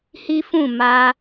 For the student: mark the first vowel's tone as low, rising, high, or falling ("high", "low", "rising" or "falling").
high